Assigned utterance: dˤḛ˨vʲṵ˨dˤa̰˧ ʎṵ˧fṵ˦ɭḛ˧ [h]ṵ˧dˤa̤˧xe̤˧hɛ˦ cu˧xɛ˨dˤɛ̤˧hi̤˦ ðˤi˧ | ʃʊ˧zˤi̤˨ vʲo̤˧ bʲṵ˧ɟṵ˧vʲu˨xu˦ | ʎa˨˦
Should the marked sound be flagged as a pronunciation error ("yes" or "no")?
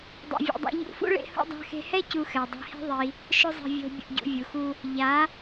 no